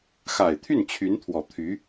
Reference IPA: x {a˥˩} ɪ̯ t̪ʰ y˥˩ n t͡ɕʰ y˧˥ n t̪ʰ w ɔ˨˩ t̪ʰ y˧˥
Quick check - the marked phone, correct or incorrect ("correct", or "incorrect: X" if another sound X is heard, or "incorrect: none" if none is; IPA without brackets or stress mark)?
incorrect: a˨˩